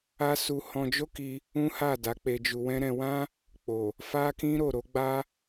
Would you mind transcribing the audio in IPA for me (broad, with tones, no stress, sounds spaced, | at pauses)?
a˦ s u˧ h ɔ̃˧ d͡ʒ o˦ k i˧ | ũ˦ h a˦˨ d a˨˦ k͡p e˧ d͡ʒ u˧ w ɛ̃˦ ɾ ɛ̃˧ w ã˦ | k͡p o˨ | f a˦ k ĩ˦ ɾ o˦˨ ɾ o˨˦ ɡ͡b a˦